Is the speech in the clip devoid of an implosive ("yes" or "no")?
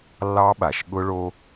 no